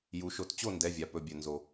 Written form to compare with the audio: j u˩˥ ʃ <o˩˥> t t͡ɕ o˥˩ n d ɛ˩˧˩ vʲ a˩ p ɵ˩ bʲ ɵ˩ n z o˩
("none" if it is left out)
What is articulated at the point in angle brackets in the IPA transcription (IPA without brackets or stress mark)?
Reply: o˩˥